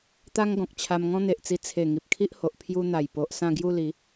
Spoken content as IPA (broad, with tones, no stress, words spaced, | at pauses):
t̪a˦ŋɡɔ̃˨k̚t͡ɕʰa˧m ŋɔ̃˦n̪e˨ʔt͡si˧ t͡sʰe˨˩ ŋi˨p̚kʰi˦ʔho˨ʔ pʰju˧n̪a˨˩j po˨ʔ sã˥˧ɡju˥˧li˨˦